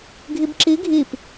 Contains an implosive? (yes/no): no